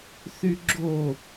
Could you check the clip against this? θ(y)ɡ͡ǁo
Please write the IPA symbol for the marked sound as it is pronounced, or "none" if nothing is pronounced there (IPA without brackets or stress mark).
y